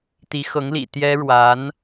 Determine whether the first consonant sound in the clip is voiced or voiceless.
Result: voiceless